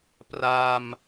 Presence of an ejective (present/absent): absent